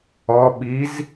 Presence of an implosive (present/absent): present